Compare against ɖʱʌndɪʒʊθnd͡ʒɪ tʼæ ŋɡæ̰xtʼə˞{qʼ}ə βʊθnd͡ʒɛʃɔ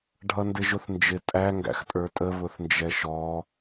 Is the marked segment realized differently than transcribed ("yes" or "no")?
yes